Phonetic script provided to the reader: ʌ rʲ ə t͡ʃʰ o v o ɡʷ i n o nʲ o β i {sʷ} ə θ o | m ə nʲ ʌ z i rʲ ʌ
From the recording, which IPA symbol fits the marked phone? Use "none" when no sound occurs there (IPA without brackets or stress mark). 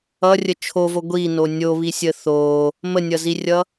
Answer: sʲ